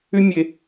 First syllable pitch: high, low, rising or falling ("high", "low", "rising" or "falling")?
high